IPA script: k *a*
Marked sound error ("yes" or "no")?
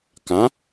yes